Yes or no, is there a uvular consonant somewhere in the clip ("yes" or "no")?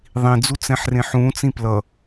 no